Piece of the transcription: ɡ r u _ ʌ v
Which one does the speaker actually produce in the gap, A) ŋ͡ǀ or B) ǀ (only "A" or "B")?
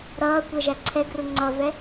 A